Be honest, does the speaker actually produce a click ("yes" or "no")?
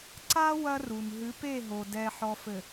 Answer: yes